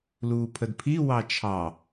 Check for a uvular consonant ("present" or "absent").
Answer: absent